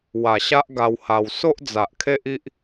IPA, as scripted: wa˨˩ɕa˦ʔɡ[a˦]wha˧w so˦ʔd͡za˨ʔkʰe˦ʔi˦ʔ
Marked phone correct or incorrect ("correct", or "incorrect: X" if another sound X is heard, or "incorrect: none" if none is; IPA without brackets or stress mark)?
incorrect: a˧